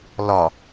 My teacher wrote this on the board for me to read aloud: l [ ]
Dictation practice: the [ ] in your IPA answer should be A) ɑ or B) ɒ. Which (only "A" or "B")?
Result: B